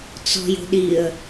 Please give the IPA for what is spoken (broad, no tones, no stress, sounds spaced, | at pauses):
t͡s ɔ̤ j o̤ ɗ i ə̯